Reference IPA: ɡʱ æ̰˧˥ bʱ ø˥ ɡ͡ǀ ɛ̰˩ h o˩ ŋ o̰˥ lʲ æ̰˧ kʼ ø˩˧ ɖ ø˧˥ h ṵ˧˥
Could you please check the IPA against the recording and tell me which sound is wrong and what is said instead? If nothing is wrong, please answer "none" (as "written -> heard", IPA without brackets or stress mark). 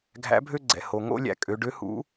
none